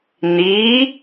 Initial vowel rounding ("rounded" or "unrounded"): unrounded